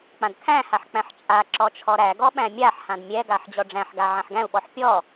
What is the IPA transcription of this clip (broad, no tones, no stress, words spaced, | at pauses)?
k͡pãdkʰæ̃haħ k͡pæ̃ħt͡ʃʼaǁɔ t͡ʃʰɔɾæɡɔ ɓæ̃mʲaħhãd mʲɛɡaħ d͡ʑɔɖ͡ʐæ̃ħɡa ʕãħɡæ̃u̯ɓɔħ pʲɔ